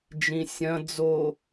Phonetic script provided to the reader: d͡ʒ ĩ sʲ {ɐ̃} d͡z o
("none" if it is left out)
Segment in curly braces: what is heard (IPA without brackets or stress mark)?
ɐ̃